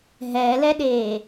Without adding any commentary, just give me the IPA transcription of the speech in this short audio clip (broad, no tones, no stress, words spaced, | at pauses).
ɦɛːlɛɗeː